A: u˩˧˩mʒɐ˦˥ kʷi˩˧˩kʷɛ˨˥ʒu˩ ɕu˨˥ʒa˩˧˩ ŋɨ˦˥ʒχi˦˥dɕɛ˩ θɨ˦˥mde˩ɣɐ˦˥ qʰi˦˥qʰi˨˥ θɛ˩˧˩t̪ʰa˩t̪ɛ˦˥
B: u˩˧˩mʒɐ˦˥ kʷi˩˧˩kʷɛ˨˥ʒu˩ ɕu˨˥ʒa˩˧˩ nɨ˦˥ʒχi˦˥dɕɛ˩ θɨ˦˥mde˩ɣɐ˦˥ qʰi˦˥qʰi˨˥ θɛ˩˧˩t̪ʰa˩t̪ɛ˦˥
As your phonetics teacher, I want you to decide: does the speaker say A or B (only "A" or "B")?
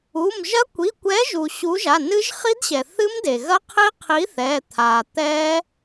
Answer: B